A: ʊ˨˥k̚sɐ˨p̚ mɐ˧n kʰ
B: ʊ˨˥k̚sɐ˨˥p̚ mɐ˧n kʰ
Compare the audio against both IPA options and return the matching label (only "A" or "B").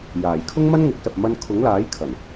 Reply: A